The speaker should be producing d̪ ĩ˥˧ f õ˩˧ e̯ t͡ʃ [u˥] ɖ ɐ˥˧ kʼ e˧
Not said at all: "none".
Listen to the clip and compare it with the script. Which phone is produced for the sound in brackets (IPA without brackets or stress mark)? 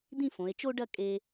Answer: o˥